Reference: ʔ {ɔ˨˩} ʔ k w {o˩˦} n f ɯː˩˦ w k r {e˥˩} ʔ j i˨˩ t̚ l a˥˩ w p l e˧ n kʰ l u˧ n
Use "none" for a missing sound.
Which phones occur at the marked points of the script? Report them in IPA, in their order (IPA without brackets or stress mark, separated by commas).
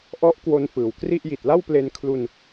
ɔ˦˥, o˧, i˥˩